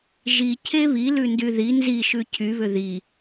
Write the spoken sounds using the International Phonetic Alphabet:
ʒ i cʰ e β i l ʉ n d y ð i n z i ʃ ʉ cʰ y β ʏ ð i

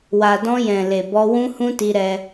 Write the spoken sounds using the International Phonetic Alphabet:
w a˨ d ɔ̃˧ j ɛ̃˨ l e˨ b ɔ˧ w ũ˦ h ũ˦ t i˧ ɾ ɛ˧

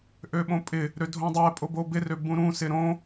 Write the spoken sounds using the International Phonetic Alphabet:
ʔ ø ɓ õ pʼ ɪ | ɾ ø dʱ õ dˤ ɛ pʼ o b o b ɪ r ø b ũ ɾ ũ s ɪ ɾ õ

